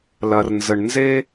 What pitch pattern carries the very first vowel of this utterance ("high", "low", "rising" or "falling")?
low